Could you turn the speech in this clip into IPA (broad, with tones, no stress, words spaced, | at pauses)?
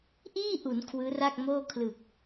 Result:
ʔiː˥˩ʔu˩˦n kʰwɯː˦˥ra˥˩k̚moː˥˩ kʰlɯ˨˩k̚